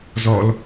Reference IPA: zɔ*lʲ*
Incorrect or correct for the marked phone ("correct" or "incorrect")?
incorrect